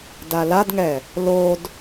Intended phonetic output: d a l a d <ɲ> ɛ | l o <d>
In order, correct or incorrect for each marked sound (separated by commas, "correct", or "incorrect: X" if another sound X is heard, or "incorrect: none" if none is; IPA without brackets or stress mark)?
incorrect: ŋ, correct